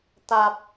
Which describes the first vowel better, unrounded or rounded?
unrounded